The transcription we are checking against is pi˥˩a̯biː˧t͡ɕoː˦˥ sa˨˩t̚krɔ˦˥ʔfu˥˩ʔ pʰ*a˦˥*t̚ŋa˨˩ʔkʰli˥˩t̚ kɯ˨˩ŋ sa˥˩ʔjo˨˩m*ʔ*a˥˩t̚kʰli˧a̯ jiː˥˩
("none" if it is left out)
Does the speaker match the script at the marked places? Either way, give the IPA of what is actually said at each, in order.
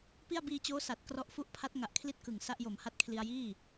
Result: a˦˥, h

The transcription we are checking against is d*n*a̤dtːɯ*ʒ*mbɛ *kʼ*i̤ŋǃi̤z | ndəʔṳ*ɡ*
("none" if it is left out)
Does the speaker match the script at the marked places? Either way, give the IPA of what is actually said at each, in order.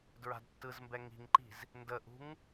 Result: ɹ, z, ŋ, ŋ

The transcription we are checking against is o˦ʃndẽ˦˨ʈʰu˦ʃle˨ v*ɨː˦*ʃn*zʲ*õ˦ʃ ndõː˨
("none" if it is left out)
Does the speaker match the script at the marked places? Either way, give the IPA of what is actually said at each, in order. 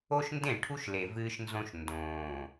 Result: ɨː˦, z

